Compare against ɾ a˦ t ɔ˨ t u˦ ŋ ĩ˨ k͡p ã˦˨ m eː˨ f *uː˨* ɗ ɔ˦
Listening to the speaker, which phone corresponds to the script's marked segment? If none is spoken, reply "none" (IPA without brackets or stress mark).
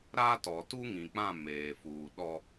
uː˨